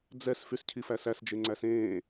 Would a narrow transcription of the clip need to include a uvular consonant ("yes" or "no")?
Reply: no